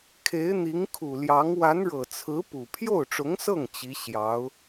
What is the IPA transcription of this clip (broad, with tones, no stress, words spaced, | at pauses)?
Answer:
kʰe˧˥ɪ̯n̪i˧˥ŋ kʰu˨˩ljɑ˧˥ŋ wa˧˥nɻɤ˨˩t͡sʰɹ̩˧˥ pu˨˩ pʰjo˥˩ʊ̯ʈ͡ʂʊ˧˥ŋsɤ˥˩ŋ t͡ɕi˧˥ ɕjɑ˧˥ʊ̯